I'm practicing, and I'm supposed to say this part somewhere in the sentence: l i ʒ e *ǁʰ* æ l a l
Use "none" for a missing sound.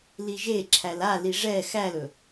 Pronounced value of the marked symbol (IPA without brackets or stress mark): ǁʰ